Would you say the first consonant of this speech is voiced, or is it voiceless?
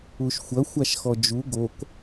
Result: voiceless